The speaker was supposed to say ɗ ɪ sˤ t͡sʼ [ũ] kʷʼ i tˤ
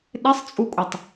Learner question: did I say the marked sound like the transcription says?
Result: no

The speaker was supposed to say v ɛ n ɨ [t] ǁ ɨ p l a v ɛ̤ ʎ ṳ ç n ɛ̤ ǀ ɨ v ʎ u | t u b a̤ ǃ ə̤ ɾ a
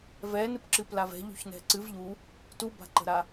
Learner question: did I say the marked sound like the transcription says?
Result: no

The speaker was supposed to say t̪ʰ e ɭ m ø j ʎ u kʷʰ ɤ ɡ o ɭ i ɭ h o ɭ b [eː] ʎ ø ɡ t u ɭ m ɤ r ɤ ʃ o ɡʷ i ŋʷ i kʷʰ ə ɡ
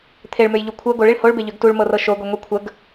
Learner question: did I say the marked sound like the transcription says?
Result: no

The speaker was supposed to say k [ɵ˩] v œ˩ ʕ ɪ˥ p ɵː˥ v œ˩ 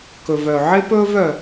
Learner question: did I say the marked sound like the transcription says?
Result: yes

